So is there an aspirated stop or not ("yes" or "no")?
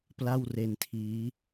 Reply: yes